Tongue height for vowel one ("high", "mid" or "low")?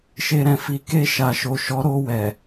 mid